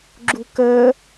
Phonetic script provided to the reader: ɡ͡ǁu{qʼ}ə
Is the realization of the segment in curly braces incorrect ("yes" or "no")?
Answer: yes